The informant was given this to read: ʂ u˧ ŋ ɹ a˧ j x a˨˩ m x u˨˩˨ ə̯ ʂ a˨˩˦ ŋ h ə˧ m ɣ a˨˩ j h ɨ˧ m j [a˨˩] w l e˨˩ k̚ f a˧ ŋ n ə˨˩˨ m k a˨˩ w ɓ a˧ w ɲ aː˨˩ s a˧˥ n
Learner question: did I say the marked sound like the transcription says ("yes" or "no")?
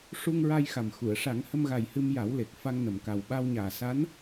no